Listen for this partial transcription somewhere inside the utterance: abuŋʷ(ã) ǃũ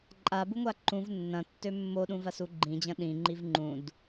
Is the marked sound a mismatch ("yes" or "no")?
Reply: yes